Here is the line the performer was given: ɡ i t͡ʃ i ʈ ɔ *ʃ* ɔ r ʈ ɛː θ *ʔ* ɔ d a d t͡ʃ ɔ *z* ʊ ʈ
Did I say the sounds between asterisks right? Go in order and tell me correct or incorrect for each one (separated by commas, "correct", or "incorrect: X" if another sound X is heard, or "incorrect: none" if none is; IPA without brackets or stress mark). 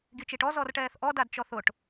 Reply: incorrect: z, correct, incorrect: θ